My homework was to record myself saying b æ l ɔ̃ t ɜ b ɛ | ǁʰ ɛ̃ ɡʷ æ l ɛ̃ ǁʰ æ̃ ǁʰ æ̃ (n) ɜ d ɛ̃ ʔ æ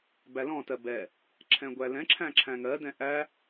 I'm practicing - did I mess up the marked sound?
yes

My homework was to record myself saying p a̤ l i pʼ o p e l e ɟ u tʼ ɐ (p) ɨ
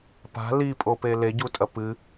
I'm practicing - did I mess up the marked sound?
no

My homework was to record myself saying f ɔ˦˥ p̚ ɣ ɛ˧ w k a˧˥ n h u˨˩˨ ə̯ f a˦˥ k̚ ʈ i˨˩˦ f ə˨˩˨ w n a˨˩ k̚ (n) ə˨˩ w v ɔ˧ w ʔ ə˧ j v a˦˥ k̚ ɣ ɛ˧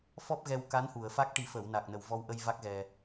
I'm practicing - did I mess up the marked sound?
no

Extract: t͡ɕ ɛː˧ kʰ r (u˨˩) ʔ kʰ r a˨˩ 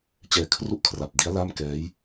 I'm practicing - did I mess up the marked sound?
yes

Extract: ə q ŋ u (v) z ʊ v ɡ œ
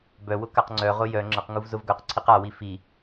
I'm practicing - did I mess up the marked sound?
no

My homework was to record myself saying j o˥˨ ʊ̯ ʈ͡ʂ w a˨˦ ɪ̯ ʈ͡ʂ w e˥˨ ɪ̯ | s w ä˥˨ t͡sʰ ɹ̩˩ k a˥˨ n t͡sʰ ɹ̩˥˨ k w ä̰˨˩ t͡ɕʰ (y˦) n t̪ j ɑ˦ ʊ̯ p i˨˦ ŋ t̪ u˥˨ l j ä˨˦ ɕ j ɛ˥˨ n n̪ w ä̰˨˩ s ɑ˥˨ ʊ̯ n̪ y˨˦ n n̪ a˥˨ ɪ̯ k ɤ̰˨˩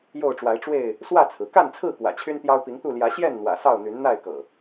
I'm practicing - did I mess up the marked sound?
no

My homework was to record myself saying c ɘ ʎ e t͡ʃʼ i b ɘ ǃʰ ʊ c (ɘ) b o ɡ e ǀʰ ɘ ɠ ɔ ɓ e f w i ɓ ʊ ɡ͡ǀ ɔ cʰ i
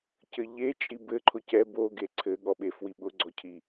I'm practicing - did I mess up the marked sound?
yes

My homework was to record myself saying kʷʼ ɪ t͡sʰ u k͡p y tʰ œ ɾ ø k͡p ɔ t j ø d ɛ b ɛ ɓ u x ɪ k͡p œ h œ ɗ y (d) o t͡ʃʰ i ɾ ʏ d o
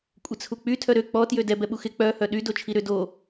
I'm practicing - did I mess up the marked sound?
no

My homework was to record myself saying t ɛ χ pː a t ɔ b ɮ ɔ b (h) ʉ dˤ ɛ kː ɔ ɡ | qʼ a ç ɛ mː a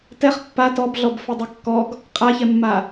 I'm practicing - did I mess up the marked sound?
yes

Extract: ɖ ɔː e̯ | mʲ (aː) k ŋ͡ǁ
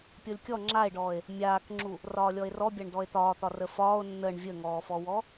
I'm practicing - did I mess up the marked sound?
no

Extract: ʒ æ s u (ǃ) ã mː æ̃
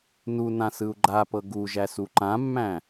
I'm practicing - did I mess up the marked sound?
no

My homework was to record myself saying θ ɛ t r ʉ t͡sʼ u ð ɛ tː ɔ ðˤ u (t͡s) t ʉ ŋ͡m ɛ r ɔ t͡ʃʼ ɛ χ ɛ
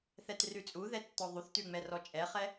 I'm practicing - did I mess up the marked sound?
yes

